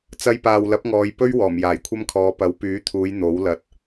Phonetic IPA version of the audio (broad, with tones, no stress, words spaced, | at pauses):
t͡sɐ˧jpaː˨w lɐ˨˥p̚ŋɔː˨˧j pɵ˥ɥ wɔː˨˩mjaː˨˩jkʷʰɐ˥mkʰɔː˨˧ pɐ˨˥wpyː˨˥t̪ʰuː˨˧j n̪o˨˥wlɐ˨t̚